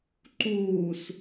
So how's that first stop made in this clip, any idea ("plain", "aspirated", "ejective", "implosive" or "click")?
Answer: click